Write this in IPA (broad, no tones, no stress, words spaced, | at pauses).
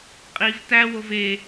qʼiv tæwov e